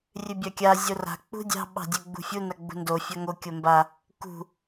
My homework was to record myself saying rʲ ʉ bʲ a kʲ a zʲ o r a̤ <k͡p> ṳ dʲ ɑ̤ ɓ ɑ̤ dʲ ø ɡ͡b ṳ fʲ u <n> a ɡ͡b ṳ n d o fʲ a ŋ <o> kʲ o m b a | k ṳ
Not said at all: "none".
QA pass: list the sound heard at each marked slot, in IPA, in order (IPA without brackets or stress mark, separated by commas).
k͡p, n, o